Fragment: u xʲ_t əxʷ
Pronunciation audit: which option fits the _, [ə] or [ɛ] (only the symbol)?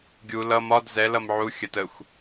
ə